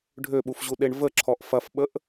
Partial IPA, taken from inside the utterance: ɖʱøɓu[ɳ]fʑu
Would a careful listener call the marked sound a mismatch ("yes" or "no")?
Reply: yes